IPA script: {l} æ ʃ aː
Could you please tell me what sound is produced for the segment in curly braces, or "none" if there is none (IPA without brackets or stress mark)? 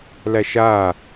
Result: l